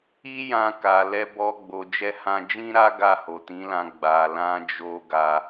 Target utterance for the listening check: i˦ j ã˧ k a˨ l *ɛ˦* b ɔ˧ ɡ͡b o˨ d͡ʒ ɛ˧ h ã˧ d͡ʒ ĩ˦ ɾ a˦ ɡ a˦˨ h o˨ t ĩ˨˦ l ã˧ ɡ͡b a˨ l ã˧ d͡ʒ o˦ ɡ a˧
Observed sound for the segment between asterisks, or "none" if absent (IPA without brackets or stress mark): ɛ˧